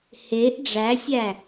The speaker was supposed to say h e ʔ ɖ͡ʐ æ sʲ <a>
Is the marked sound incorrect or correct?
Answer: incorrect